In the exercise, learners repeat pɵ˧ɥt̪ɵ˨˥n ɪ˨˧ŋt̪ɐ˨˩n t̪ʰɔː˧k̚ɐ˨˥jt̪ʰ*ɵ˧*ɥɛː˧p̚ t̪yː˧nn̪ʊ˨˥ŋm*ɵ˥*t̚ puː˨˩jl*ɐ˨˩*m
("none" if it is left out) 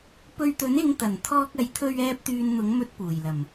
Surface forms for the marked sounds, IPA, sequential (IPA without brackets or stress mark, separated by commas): ɵ˧, ɵ˧, ɐ˨˩